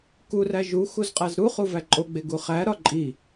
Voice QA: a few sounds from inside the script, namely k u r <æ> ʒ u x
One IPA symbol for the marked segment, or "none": æ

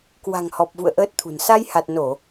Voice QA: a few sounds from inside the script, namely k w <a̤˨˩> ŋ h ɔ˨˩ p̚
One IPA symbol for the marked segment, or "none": a̤˨˩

